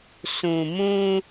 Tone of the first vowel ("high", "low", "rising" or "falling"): low